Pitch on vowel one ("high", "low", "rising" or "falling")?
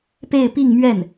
falling